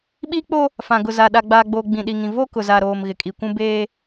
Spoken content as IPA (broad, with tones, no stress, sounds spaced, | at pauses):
ɓ iː˦ k͡p o˦ | f ã˨ ɡ ʊ˨ z a˨ ɗ a˨ ɡ͡b aː˨ ɡ͡b oː˨ ɡ͡b ĩ˨ ɗ i˨ ŋ ĩ˨ v o˦ k ʊ˨ z a˨ ɾ oː˨ m ɣ ɪ˨ kʼ i˨ kʷ ũ˦ b eː˦